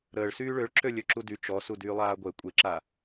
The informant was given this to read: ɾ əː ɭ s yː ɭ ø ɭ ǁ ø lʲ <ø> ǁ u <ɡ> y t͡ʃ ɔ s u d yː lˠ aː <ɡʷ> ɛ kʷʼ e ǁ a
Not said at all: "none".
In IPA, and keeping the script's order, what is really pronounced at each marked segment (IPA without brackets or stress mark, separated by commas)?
ø, d, ɡʷ